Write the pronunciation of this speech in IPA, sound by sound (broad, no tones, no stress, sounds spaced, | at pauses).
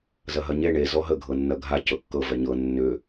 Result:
z ɐ ɦ ɐ ɲ e ɳ e z ɔ ɦ ə ɡʱ ɤ nː ɐ ɡʱ a c ɤ kː ɤ v ɛ ɲ ɤ nː ʏ